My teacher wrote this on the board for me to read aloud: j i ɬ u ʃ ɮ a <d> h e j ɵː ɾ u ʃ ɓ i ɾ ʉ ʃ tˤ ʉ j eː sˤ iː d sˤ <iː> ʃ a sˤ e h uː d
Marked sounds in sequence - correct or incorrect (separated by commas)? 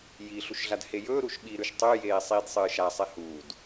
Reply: correct, incorrect